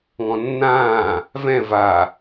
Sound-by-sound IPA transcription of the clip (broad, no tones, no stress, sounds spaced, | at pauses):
ŋ ɔ̃ nː ãː | v ɛ̃ v a